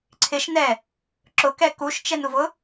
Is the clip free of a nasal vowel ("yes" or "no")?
yes